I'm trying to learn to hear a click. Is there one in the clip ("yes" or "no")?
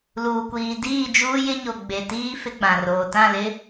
no